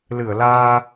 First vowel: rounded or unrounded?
unrounded